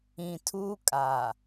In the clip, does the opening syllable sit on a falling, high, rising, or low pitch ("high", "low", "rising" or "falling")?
low